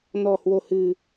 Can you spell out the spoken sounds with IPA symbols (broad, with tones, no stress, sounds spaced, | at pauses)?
n ɔ̤˨˩ h w o̤˨˩ h ɨ̤˨˩